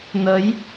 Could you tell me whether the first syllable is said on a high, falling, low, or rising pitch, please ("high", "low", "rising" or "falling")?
rising